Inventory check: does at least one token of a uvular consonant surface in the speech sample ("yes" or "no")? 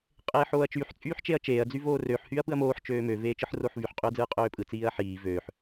yes